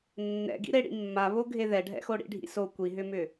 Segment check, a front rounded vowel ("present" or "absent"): present